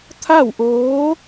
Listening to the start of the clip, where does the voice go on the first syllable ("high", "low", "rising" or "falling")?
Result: falling